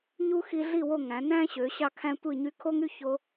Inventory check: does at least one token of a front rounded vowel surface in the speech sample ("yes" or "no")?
yes